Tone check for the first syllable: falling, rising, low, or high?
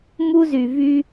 high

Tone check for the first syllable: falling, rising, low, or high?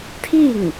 falling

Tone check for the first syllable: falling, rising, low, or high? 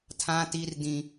high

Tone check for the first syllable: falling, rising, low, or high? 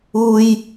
low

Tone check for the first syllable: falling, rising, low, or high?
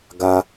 high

